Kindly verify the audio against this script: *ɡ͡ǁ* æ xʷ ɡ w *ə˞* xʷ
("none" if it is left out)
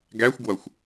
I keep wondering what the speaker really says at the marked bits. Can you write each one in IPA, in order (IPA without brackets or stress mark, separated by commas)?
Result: ɡ, ʌ